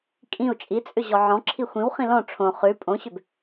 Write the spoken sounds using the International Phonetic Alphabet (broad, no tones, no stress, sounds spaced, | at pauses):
kʼ ĩ u̯ t͡ʃʼ i t͡sʼ ʏ ʑ ɔ ʕ ɔ̃ ǁʰ i xʷ ĩ w χ ĩ l ɔ̃ ʈ͡ʂʰ õ χ ʉ pʼ õ ɕ ʏ b